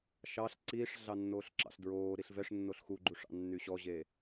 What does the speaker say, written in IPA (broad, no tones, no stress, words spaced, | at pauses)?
ʃɑɬ ǀiːʂɮɑ nːoːɬǁɑ̰ɬdɹoː ɾiɬvɛʂnːoɬ xuɡ͡ǃuʂɑ̰ nːyɕɔʑe